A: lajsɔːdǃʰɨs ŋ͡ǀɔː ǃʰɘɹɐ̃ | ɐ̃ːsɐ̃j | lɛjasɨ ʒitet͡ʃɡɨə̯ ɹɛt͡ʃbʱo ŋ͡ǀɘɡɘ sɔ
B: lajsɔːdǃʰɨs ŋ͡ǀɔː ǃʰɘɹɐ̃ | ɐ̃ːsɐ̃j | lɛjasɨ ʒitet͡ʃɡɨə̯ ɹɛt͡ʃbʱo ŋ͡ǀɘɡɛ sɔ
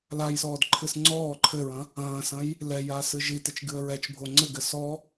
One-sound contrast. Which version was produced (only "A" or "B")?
A